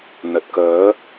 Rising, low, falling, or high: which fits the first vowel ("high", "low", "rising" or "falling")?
low